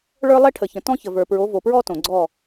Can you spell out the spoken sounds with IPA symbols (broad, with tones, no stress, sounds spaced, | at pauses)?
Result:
ɭ ə˞˦ lˠ ɛ˦ ʈʰ ə˨ ç ə̃˨ t ɔ̃˦ ç ə˨ v ə˞˨ p ɹ o˨˦ v o˨ p ɹ ɔ˦ t õ˨ ɡ͡ǀ ɔ˦˨